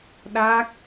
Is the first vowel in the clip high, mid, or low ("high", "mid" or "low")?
low